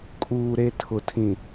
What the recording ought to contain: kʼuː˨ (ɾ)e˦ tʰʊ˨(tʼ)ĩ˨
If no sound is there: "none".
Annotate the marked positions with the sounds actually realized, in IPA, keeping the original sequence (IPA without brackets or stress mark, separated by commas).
ɾ, tʰ